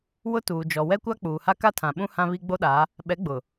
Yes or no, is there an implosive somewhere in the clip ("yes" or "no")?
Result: yes